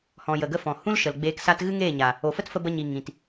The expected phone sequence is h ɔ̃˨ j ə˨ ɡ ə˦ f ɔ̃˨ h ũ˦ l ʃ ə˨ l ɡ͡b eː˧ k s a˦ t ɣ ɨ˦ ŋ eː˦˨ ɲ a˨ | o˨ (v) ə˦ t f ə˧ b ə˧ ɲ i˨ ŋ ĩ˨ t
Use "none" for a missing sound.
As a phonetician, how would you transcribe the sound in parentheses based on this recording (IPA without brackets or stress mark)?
f